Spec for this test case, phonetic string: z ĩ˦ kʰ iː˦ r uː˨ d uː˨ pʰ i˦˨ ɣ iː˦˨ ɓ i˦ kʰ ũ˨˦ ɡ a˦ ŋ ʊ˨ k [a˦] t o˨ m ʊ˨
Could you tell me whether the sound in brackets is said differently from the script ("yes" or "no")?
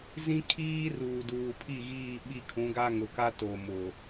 no